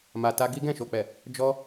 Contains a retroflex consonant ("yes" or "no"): no